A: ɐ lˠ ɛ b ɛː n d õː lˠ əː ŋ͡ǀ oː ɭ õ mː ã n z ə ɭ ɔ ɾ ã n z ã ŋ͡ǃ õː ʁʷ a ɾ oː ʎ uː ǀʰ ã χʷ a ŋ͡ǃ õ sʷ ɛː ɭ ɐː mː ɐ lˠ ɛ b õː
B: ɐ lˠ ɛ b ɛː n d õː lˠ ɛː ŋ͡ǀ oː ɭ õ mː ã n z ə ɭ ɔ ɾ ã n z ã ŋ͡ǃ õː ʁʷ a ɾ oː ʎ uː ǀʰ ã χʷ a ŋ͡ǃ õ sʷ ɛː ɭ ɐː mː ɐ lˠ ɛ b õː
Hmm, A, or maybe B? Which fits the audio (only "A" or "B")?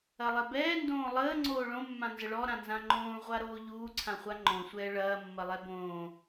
A